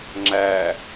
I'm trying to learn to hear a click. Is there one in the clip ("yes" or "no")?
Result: yes